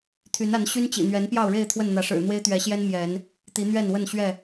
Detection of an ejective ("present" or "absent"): absent